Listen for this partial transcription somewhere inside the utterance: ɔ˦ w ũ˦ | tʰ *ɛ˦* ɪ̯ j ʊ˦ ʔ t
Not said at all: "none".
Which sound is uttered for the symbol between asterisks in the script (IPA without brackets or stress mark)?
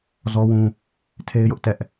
e˦